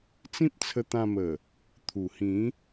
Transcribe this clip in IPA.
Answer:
t͡s ĩ˦ p̚ t͡sʰ ə˧ t̪ ã˧ m ə˨˩ | t̪ʰ u˨˩ h ĩ˨˦

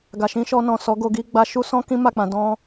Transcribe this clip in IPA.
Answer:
ɡ a˨ ʃ ĩ˧ ʃ ɔ˧ n ɔ̃˨ s ɔ˨˦ ɡ o˧ ɡ i˦ ɡ͡b a˧ ʃ u˦ s ɔ̃˦ k ĩ˦ m a˦˨ k͡p ã˧ d ɔ̃˦

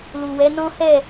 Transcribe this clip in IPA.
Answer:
l u˨ w ɛ˨˦ n ɔ̃˦ h ɛ˦˨

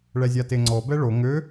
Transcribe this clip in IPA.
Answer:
ɭ ɛ zʲ a t e ŋ͡ǀ ɔ b ɛ ɭ o ŋ ø

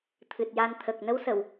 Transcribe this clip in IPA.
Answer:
t̪ʰ ɨ˨˩ t̚ j a˧ n t̪ʰ ə˨˩ k̚ n ə˧˥ w s ə˨˩˨ w

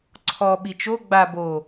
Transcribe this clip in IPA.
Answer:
ǀʰ ɔ ɓ i t͡ʃ o ɡ͡b a b o

